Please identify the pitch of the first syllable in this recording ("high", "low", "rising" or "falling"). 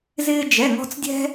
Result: high